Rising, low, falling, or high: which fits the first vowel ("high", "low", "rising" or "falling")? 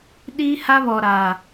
high